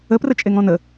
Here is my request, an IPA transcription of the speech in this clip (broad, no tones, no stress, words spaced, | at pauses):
əprət͡ʃʼeŋ ɔ̃nə